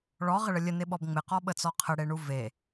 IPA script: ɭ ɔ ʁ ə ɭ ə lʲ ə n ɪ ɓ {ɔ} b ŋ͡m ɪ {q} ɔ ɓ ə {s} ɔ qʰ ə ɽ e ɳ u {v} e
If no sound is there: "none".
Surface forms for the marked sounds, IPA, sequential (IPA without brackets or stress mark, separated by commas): ɔ, q, t͡s, v